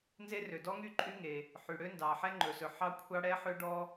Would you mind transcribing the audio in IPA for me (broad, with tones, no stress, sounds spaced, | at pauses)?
n z e˥ r ø˩ d ɔ˥ ŋ y˥ ǃʼ y˥ ŋ e˩ | ħ y˩ ɽ ø˥ n d ɑ˩ ħ ɛ˥ ŋ͡ǃ ɵ˩ s ɵ˩ ħ ɑ˥ kʷʰ ɑ˥ ɽ ɛ˥ ħ ø˥ ɖ ɔ˥